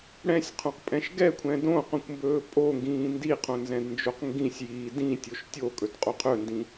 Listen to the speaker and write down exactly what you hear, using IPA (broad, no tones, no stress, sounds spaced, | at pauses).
ɽ ɛ̃ sʲ qʰ õ q pʼ ɛ̃ ʃ ɡ ɛ kʷʰ ɛ̃ d õ q õ kʷ m b ɵː pʼ o ŋ ɡ ĩː n d i qʰ õ n z ɛ̃ d n d͡ʒ o q ŋ ɡ ĩ sʲ j iː d ĩ tʲ o ʃ tʲ o kʼ ɵ d qʼ o qʰ ɵ n d ĩ